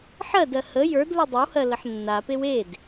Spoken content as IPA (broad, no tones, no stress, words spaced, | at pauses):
ħɜdɜ hə jə˞d ludˤʏwhɜ ləħnːapew ed